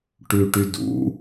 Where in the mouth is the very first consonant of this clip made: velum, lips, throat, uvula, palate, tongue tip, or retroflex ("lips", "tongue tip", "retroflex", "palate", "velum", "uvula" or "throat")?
retroflex